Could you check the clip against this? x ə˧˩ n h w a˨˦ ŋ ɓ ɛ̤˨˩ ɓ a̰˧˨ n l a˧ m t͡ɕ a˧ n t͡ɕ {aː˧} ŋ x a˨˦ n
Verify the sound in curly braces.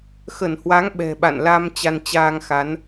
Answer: correct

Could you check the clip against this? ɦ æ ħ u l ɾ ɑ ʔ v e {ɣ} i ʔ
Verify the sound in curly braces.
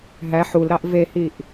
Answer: incorrect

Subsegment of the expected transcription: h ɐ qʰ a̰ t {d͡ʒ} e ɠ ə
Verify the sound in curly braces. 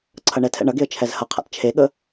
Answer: incorrect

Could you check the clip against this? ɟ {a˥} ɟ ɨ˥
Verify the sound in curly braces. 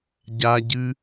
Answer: correct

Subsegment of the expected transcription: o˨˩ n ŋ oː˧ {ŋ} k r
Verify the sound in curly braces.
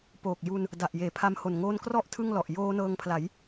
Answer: incorrect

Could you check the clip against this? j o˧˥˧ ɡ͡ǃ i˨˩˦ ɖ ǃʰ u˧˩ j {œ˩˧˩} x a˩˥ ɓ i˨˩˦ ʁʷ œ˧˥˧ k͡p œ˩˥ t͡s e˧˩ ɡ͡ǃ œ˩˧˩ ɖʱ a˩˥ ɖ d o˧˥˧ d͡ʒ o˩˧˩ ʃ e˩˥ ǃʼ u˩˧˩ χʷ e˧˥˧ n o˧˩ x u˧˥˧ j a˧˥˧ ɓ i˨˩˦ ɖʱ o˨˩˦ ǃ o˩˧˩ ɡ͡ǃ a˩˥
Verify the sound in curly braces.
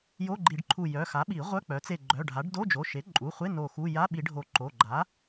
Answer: correct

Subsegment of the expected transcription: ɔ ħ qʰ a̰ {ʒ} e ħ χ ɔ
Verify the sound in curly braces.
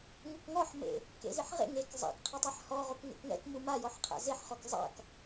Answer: incorrect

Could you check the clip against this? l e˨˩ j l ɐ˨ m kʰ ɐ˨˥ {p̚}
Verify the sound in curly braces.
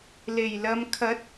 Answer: incorrect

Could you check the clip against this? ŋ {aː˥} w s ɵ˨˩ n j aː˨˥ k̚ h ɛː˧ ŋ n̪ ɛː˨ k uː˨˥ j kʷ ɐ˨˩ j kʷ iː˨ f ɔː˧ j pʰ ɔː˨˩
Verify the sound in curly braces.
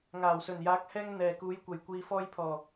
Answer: incorrect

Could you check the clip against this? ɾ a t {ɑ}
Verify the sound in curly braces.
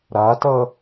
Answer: incorrect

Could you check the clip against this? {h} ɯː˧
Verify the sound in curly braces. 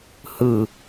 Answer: correct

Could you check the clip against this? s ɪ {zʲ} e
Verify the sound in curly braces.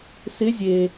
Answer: correct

